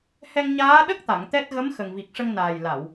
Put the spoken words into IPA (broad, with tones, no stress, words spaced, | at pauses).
hɛ˧ŋ ɲaː˧˥ ɗə˦˥k̚ t̪a˨˩˨ŋt̪ɛ˦˥t̚ ɣə˧˥m xə˨˩ŋvi˨˩k̚ʂə˧ŋnaː˨˩j la˨˩˨w